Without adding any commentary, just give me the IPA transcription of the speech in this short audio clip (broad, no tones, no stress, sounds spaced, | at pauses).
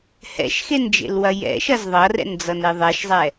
h ɛ̰ ʃ x e n d͡ʒ ḛ l w ɐ j ɛ̰ ʃ ɐ z ðˤ ʌ r ɛ̰ n d͡z ʌ n e ðˤ ɛ ʃ zˤ ɛ